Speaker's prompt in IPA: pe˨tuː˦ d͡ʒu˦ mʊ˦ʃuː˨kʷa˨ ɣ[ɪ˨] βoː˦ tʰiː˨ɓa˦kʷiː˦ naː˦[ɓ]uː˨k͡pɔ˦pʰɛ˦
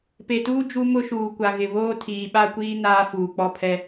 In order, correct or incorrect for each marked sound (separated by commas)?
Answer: correct, incorrect